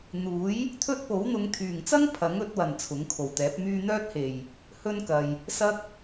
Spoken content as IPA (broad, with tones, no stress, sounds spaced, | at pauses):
n̪ uː˨˥ j | t̪ʰ ɵ˥ t̚ p o˨˥ w n̪ ʊ˨˧ ŋ t̪ʰ yː˨˩ ŋ t͡s ɐ˥ ŋ pʰ ɐ˨˥ ŋ ɵ˨˥ t̚ w ɐ˨˩ n t͡sʰ ʊ˨˥ ŋ kʰ o˨˩ w t̪ ɛː˨˥ p̚ m yː˥ n̪ œː˥ t̚ h e˨˩ j | h ɵ˥ n k ɐ˨ j | s ɐ˥ k̚